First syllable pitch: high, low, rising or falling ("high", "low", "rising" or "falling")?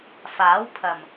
rising